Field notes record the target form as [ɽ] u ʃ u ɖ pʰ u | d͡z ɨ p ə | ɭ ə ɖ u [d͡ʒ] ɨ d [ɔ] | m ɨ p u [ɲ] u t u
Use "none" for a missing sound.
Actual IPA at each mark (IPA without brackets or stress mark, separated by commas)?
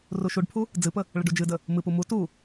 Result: r, d͡ʒ, ə, m